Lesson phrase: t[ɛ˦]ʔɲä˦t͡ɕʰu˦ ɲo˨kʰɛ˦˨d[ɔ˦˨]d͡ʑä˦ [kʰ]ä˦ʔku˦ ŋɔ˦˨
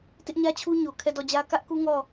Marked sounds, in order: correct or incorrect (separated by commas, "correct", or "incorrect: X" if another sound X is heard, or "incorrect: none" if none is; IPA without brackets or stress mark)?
incorrect: ɪ˦, correct, incorrect: k